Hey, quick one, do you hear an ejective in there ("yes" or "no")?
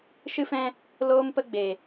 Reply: no